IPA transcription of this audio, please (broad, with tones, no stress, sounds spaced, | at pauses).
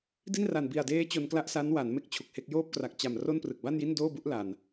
d i˥˩ n r a˨˩ n b i˨˩ a̯ d eː˦˥ t͡ɕ o˧ n k l a˥˩ ʔ s a˦˥ n w a˩˦ n m e˥˩ k̚ t͡ɕʰ u˨˩ k̚ h e˥˩ k̚ j oː˥˩ p̚ k r a˨˩ k̚ t͡ɕ a˨˩ m r o˥˩ n p r ɯ˨˩ k̚ b a˥˩ n j i˥˩ n d oː˥˩ b u˥˩ ʔ l a˨˩ n